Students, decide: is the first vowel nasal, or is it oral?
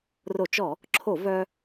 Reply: oral